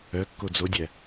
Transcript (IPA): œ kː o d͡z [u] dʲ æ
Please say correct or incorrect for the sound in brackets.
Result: incorrect